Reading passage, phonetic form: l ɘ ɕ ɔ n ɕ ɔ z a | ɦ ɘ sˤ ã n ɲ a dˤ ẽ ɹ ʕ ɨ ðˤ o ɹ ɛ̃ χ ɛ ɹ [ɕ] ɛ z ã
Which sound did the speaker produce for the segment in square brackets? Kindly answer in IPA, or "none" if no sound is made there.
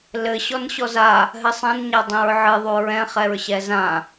ɕ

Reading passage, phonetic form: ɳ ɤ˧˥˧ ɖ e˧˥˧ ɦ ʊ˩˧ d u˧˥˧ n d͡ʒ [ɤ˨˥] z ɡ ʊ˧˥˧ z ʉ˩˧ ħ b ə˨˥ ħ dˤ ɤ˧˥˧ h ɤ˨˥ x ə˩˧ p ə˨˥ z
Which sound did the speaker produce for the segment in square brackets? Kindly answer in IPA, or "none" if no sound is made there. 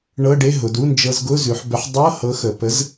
ɤ˧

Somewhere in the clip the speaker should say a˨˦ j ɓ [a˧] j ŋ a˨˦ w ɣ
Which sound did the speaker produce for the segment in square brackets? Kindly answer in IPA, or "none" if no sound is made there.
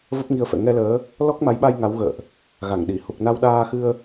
a˧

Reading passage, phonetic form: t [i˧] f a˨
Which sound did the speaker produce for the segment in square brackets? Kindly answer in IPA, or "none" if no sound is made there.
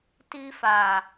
i˧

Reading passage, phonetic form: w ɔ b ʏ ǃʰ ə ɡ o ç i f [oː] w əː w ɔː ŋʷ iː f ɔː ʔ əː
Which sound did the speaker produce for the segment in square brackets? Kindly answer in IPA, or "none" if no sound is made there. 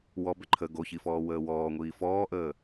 ɔː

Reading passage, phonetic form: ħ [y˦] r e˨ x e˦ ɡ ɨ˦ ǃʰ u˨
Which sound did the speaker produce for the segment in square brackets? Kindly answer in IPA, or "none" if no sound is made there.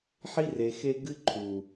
i˦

